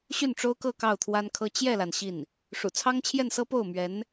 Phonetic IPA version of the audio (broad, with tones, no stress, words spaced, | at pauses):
ɕy˥˩nʈ͡ʂo˥ʊ̯kɤ˥˧ kɑ˥˩ʊ̯t̪ʰwa˥nkʰɤ˥ t͡ɕjɛ˥˩la˩n ɕi˥˩n | ʂṵ˨˩ t͡sʰɑ˥ŋt͡ɕʰjɛ˥˩nsɤ˥ po˥˩ʊ̯mɥɛ˧˥n